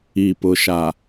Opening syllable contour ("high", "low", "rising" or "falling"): low